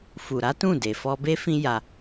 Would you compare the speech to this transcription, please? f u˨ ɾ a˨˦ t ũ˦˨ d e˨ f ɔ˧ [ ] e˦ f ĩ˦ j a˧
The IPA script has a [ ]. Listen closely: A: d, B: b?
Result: B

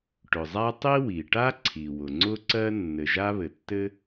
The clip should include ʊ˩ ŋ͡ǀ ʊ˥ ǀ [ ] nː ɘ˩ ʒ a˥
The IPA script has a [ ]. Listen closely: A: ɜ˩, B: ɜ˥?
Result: B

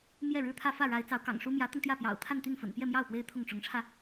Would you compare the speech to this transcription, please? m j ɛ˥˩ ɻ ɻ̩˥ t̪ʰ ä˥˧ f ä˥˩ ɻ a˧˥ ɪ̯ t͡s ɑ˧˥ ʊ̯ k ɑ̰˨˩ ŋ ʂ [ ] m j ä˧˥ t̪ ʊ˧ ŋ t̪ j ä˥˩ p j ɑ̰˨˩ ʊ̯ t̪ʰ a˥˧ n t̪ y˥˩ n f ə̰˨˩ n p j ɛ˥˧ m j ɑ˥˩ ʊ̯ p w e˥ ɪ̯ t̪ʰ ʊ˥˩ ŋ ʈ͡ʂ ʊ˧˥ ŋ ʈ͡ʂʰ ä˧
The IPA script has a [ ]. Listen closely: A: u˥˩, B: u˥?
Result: B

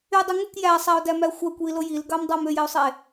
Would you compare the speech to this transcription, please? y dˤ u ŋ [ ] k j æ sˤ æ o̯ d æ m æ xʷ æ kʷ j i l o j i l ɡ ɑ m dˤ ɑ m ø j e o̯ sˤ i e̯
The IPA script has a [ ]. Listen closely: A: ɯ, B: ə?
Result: A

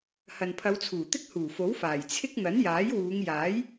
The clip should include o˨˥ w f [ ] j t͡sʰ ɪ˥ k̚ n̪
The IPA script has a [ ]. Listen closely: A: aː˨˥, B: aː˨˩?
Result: B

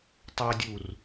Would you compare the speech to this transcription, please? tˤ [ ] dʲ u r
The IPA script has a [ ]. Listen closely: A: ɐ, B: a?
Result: A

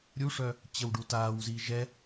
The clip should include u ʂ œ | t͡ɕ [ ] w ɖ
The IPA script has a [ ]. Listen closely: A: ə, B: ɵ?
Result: A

